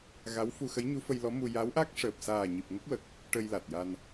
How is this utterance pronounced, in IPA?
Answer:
ɣ a˧˥ w f u˧ x ə˧˥ j ɲ u˧˥ f ə˧ j l ɔ˧˥ m u˧ j a˧˥ w ʔ a˦˥ k̚ ʂ əː˨˩ p̚ s aː˨˩ ɲ i˨˩ p̚ ŋ ə˦˥ k̚ w ə˨˩ k̚ | ʈ ə˧ j l a˨˩ t̚ j a˧ n

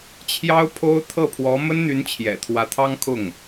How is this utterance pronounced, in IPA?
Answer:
t͡ɕʰ j ɑ˥ ʊ̯ pʰ o˥ ʊ̯ t̪ʰ ɤ˥˩ pʰ w ɔ˧˥ m ə˥ n n̪ y˧˥ n t͡ɕʰ j ɛ̰˨˩ t̪ʰ w ä˧˥ t̪ʰ ɑ˥ ŋ kʰ ʊ˥˩ ŋ

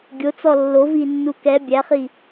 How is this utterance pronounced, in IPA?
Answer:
ɡʲ o t͡s ɔ lː o v i nː u k ɛ bʲ æ χ i

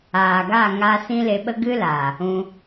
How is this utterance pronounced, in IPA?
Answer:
aː˨ ɡ a˦˨ ŋ a˧ s ĩ˦ l e˧ ɓ ə˦ ɡ ɨ˦ l aː˨ | ũ˧

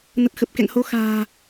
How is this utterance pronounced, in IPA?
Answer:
n ə˨˩ t̚ x ə˨˩ p̚ k ɛ̰˧˨ ŋ h o˨˦ x a̤ː˨˩

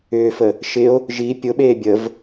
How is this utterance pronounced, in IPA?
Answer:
ʏː f ə | ʃ ɪ o̯ | ʒ i pʲ ʊ ɓ eː bʲ ə v

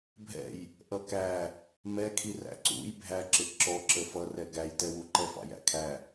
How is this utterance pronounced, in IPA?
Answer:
bʱ ɛ̰ j | ʔ ʌ k æ | m ɛ kʰ i r æ̰ ǀ ṵ j bʱ æ ǁ ɪ ʔ ǁ ɔ ǁ ə f ʌ r ɛ ɡ æ j t ɛ w u ǃ ɛ f ɑ̰ j æ̰ kʰ æ

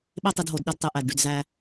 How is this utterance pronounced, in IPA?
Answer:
ɓ e˦ tˤ i˨ d ɦ o˨ d ɗ e˦ d tˤ e˨ ʔ æ˨ d ɖ y˨ d z æ˦

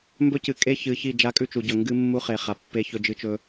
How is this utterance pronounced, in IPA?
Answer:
m b ɵ˦ c ɨ˨ kʼ e˦ ç ɨ˨ ç i˦˨ d͡ʒ a˦ kʼ ʉ˦˨ t͡ʃ u˨ ɟ ɵ˨ ŋ ɡ ɨ˦ mː u˦ χ e˨ χ a˨ pː e˦ ç ɵ˦ d͡ʒ ɨ˦ t͡ʃ ɵ˦

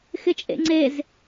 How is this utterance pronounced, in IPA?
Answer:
x ɪ t͡ʃʼ ḛ ŋ͡ǀ e z

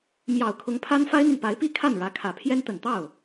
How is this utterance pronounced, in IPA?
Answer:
m j ɑ˨˩ ʊ̯ kʰ ʊ˧˥ ŋ pʰ a˥ n f a˥ ɪ̯ n̪ y˨ n p a˧˥ ɪ̯ p i˥ kʰ a˥˩ n ɻ ä˧˥ kʰ ä˨˩ pʰ j ɛ˥ n t̪ ə˨˩ n t̪ ɑ˥˩ ʊ̯

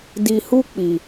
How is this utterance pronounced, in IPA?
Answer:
d i˧ h u˦ k͡p i˧

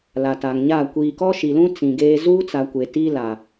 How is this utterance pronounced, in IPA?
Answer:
l a˨ t a˨ ŋ ɲ a˦˨ kʷ iː˨ k ɔ˦ ʃ i˨ l ũ˦ t͡s ĩ˨ ɡ eː˦ z uː˦ t͡s a˨ kʷ e˨ t i˦ l a˨

